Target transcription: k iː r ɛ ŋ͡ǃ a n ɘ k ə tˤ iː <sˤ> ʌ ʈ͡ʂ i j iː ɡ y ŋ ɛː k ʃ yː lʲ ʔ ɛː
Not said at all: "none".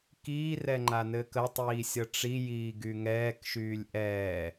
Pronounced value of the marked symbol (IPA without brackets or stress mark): sʲ